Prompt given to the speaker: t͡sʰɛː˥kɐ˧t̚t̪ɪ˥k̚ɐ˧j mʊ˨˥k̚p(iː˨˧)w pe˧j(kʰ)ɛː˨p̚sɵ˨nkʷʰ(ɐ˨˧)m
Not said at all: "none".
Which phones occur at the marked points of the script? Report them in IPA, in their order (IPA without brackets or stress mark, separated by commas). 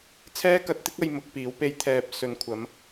iː˨˥, t̪ʰ, ɐ˨˧